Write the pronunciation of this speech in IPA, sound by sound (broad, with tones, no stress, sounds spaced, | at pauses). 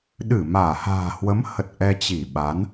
ɗ ɨ˧˩ m aː˧˩ h a̤ː˨˩ h w ə˨˦ m h ə˨˩ t̚ ʔ ɛ˧ t͡ɕ i˧˩ ɓ a˨˦ n